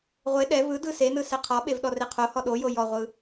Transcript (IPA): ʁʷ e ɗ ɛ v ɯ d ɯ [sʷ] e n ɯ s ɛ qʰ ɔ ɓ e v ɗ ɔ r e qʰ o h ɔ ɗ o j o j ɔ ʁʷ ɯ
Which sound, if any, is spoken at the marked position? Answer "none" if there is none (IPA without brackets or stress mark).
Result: s